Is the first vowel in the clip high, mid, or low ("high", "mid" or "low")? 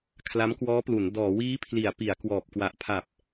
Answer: low